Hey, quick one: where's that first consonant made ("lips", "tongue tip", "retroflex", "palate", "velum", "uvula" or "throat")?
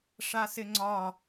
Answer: retroflex